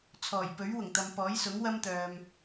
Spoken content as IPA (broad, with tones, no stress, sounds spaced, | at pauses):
t͡sʰ ɔː˨˩ j p ɵ˨˥ ɥ w ʊ˨˩ ŋ t̪ ɐ˨ m p ɔː˨˥ j s ʊ˨˥ ŋ w ɐ˥ m t̪ œː˨ m